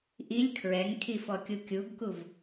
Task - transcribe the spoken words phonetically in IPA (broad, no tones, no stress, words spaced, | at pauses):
ʔilʲ kʰɹɛŋkʰifɔkʲu kʲuɡkuv